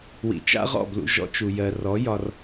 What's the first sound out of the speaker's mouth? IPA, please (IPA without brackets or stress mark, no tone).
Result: w